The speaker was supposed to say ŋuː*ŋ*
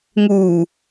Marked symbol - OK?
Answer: no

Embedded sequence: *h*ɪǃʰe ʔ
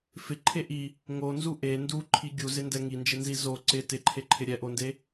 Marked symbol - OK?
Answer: no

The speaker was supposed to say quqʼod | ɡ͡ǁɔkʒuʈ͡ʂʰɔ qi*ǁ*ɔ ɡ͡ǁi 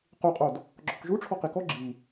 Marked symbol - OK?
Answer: no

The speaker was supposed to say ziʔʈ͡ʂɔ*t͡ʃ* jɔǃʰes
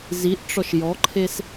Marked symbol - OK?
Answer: no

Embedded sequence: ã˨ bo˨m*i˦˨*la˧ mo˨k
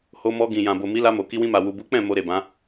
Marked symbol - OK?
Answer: no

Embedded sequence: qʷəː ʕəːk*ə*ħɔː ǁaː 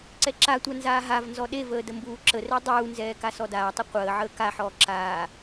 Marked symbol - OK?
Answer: no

